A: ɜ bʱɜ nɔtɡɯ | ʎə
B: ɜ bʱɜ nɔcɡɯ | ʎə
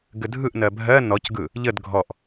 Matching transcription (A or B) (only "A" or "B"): B